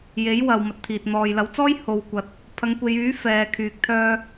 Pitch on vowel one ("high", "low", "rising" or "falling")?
rising